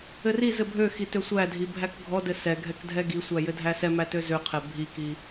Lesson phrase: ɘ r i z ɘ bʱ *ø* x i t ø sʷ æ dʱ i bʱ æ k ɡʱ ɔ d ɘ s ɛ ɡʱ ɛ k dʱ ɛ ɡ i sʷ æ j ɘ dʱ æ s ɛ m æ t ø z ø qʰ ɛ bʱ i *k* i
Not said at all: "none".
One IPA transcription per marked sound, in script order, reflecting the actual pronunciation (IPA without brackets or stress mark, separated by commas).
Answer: ø, k